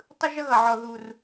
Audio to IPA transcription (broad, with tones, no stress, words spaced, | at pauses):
tˤɯ˥ʒʌ˥ɣʌ˨˩ʕɔ˨˩ ðu˨˩r